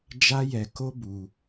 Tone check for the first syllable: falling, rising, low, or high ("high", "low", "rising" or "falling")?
high